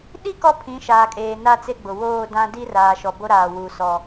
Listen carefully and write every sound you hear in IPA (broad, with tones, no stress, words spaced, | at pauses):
ɗi˦ kɔ˦pʰĩ˨˦ʃaː˨kʼeː˨ na˦t͡se˦ɡ͡bʊ˨ woː˦˨dã˦ di˦raː˨ʃɔ˨ bo˦ɾaː˨ wu˨sɔ˨